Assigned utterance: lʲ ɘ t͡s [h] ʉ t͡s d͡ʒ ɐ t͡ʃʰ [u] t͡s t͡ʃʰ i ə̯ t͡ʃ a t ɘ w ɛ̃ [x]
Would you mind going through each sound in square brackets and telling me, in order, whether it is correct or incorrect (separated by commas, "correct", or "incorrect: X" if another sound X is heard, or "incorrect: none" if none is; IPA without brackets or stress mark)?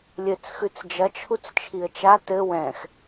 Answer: incorrect: x, correct, correct